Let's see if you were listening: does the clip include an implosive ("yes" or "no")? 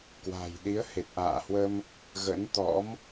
yes